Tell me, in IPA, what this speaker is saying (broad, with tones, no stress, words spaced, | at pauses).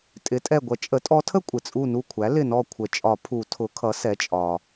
tʼɪ˩˥tʼɛ˧˩ ɡʷʌ˩˥t͡ʃʼə˩˥ tʼɔ˧˥tʰə˥ kʷʼɪ˩t͡sʼu˧˩ nu˧˩kʷʰæ˩˥ lɪ˧˩nɔ˧˩ kʷʰə˨˩˦ t͡ʃʼɒ˨˩˦pʰu˨˩˦tʰʊ˩˥kʰʌ˩˥ sɛ˩˥t͡ʃʼɒ˩